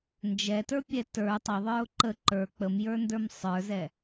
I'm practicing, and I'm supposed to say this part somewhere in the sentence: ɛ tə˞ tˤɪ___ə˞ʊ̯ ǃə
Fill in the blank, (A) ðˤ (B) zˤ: A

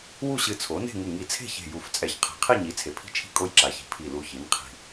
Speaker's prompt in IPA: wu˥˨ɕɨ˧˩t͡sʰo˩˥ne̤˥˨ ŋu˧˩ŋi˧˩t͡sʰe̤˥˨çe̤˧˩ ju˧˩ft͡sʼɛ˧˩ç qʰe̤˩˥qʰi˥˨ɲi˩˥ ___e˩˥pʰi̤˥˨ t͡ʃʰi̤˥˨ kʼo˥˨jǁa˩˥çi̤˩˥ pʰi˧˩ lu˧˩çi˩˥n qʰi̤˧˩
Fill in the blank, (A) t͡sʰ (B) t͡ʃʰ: A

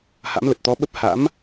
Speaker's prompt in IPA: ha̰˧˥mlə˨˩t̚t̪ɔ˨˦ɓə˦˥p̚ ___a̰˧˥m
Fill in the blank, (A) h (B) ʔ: A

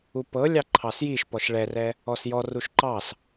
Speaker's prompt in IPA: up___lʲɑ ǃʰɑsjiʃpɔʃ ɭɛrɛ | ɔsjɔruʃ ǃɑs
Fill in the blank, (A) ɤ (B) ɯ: A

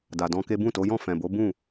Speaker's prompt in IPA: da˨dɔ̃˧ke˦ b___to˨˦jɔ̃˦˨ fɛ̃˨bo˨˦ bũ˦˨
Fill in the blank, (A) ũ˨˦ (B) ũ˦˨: B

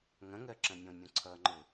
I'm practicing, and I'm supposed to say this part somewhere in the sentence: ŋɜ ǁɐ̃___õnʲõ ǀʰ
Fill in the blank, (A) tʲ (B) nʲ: B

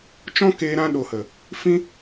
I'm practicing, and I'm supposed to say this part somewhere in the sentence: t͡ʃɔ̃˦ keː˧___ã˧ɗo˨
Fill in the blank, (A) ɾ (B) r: A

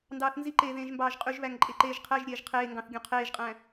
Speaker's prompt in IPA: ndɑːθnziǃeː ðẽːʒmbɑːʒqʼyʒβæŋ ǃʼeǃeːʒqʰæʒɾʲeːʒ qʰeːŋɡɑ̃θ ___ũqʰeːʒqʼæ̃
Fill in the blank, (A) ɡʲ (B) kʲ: A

